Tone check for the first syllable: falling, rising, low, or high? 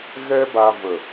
high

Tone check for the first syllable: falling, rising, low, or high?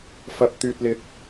low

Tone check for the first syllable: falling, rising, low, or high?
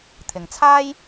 low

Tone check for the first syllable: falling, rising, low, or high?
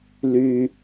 high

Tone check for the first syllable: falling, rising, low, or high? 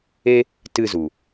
high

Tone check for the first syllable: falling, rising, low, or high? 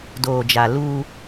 low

